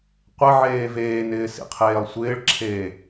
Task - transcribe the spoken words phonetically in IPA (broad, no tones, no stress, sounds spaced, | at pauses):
qʷ ɪ ʕ eː v eː n ɪː s ḭ qʰ eː lˠ sʷ ɪː ɭ ǁʰ eː